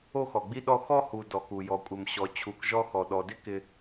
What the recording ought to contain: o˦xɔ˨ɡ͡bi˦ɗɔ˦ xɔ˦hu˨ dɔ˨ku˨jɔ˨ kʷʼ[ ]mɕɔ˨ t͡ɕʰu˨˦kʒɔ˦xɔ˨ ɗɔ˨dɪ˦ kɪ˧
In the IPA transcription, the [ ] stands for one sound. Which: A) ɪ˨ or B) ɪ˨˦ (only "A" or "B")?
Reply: A